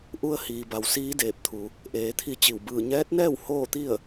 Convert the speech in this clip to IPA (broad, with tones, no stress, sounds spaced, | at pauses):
ʔ u˧ ə̯ h iː˩ b a˩ w s iː˧˥ d eː˧˩ p̚ t̪ʰ u˩˧ | ʔ eː˩˧ t̪ʰ i˧ t͡ɕ i˧˩ w b ɯː˧˩ ɲ ɛː˧˥ t̚ n ɛː˥˨ w h oː˥˨ t̪ i˥˨ ə̯